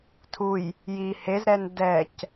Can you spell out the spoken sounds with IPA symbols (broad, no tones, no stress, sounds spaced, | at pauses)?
tʰ u j | j i h e z ɾ ɛ n d ɛ c